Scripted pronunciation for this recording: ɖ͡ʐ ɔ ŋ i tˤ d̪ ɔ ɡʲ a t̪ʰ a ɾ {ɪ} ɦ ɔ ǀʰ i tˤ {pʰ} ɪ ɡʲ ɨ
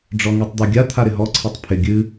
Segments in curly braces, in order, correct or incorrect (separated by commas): correct, correct